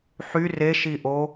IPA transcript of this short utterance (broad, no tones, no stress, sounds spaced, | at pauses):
ħ y r e ʃ i ʔ o